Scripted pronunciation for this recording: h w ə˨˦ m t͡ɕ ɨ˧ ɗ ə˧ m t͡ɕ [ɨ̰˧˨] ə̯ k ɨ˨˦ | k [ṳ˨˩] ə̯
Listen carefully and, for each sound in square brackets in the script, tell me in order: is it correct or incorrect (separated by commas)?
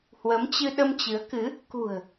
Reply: incorrect, correct